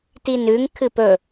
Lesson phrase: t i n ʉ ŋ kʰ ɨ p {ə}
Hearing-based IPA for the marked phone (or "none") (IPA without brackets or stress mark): ɵ